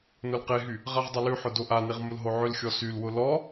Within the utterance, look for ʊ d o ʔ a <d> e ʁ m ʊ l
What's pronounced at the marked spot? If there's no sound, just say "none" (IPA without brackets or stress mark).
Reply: n